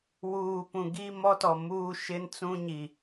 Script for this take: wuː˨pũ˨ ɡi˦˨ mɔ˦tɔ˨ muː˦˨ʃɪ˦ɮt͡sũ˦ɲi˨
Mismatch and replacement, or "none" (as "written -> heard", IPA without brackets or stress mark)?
ɮ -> n